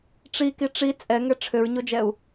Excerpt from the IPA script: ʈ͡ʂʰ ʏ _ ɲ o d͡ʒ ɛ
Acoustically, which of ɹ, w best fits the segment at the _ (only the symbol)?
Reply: ɹ